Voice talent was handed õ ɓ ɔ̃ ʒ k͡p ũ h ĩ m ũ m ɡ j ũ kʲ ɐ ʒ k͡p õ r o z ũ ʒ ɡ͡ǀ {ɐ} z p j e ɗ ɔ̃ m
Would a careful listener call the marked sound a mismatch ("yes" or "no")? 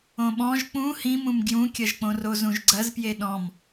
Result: no